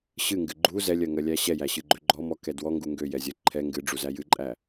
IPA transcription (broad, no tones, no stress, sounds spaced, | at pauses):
ɕ ɨ ŋ ɡ ɨ ɡ͡ǃ u z ɛ lʲ ɜ ŋ ɜ lʲ æ ɕ ɛ j æ ɕ ɨ ɡ͡ǃ ø ɡ͡ǃ ɔ m ɔ k ɛ d w ɔ ŋ ɡ u ŋ ɡ ø j ɛ zʲ ɜ ǃʰ ɛ ŋ ɡ ɨ ɖ͡ʐ u z æ j ɨ ǃʼ æ